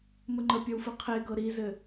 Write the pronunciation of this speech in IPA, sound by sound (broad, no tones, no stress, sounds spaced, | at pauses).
m ə ŋ͡ǃ ə pʲ ɔ w f ɘ qʰ e ɡ ɤ ɾ i z ɘ